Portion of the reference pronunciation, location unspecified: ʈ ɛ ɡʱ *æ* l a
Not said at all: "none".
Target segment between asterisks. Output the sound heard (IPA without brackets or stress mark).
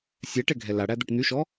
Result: ɛ